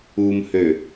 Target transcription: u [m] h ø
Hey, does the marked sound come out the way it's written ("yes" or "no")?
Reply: yes